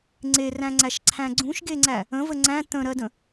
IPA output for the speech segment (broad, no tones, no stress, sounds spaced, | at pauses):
ŋ͡ǀ e r æ̃ ŋ͡ǀ æ ʃ ǀʰ æ̃ ɡ͡ǀ ũ ʃ ɡ e ŋ͡ǀ æ | ə̃ v ə ŋ͡ǀ æ̃ t̪ ə̃ ɾ ɜ d ə̃